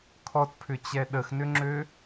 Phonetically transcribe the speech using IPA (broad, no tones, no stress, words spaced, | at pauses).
kʰɔtpʰʏt͡ɕɛ ɗəxnʏŋ͡ǁø